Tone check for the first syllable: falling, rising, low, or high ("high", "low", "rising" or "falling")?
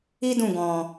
high